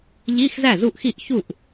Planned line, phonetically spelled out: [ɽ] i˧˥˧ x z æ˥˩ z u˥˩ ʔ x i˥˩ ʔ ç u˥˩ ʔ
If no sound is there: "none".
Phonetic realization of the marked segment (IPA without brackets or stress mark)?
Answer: ʎ